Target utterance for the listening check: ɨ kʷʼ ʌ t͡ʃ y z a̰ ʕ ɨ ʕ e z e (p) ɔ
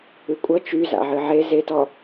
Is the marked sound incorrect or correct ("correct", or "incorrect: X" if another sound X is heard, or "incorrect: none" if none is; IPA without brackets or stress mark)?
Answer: incorrect: t